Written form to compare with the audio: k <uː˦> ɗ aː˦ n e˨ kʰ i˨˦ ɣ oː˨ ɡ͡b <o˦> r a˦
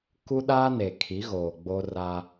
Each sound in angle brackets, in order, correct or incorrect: incorrect, correct

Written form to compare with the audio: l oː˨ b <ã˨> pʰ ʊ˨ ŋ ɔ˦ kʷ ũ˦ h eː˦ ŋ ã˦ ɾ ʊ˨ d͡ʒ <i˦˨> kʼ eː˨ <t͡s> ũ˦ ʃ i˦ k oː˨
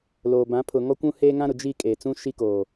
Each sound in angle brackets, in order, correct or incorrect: incorrect, correct, correct

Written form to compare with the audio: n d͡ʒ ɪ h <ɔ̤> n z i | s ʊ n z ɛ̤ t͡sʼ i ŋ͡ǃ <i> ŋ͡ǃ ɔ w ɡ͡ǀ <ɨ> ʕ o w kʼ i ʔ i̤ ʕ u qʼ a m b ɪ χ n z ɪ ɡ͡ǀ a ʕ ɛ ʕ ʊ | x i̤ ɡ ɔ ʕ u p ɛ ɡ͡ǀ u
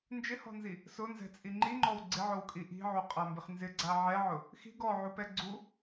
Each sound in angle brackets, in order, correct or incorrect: correct, correct, incorrect

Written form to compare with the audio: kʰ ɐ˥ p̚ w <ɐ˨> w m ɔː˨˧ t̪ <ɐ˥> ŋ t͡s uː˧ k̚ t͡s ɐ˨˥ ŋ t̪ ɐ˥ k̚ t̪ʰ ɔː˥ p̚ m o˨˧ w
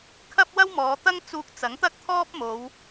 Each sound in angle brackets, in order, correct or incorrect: incorrect, correct

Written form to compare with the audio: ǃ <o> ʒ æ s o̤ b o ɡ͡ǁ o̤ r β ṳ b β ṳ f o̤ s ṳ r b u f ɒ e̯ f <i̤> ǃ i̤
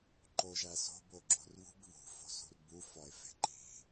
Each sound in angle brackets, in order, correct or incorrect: correct, incorrect

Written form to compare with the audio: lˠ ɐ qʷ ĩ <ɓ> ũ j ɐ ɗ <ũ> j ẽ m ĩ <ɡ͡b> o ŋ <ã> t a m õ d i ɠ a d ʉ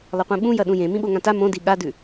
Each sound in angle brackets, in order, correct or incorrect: correct, correct, incorrect, correct

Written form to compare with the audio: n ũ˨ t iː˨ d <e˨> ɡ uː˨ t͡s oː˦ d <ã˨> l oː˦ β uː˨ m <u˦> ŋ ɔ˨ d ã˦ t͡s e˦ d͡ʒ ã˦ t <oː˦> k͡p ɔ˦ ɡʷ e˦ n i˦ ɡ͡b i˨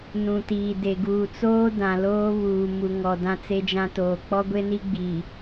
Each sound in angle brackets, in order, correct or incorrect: correct, correct, incorrect, incorrect

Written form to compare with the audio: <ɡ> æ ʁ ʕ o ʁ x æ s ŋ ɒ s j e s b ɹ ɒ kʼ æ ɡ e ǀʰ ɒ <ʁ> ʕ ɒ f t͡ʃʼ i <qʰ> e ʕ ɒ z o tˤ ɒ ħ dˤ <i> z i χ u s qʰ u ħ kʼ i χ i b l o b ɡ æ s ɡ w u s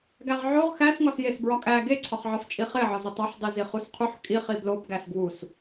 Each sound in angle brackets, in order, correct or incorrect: correct, incorrect, incorrect, incorrect

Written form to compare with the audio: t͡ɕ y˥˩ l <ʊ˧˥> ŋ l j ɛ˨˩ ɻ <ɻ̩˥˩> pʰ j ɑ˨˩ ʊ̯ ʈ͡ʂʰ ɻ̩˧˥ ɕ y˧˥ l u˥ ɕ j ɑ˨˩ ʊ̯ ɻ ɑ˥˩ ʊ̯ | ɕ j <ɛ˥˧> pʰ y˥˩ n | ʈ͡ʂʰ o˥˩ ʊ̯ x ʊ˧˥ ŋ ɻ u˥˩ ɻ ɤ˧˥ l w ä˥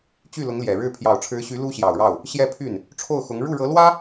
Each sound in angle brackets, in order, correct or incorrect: correct, correct, correct

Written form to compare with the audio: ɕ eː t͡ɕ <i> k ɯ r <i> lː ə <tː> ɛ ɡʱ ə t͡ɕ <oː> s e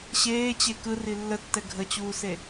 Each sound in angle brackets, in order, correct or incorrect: incorrect, correct, correct, incorrect

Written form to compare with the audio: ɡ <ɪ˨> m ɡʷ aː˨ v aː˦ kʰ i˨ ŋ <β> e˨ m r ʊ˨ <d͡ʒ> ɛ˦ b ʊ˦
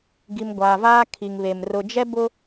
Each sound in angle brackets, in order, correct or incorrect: incorrect, correct, correct

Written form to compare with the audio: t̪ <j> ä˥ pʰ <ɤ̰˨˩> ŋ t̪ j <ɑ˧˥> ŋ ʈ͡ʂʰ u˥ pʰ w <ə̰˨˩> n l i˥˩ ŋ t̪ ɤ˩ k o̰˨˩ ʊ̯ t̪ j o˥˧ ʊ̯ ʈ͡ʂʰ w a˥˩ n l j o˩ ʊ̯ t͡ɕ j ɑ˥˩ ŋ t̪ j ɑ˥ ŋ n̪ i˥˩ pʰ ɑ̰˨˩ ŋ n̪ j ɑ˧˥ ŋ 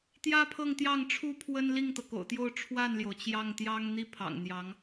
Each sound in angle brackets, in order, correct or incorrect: correct, incorrect, incorrect, incorrect

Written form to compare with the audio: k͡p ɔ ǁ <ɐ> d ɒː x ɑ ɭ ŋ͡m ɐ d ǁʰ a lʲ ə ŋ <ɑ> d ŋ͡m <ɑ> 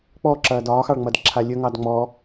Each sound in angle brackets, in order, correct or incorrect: incorrect, correct, incorrect

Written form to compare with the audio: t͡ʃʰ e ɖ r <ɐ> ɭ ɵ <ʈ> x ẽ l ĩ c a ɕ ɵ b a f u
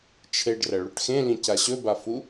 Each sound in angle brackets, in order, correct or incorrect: correct, correct

